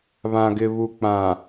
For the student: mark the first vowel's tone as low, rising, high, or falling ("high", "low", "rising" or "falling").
low